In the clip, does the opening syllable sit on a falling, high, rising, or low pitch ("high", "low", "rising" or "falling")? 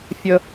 high